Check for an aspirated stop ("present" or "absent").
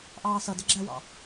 absent